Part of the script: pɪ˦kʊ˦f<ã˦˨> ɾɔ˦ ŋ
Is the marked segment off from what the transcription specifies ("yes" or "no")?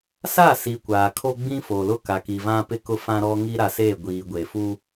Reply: yes